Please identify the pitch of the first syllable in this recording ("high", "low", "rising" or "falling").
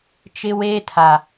high